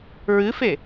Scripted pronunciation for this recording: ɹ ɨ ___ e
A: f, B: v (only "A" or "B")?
A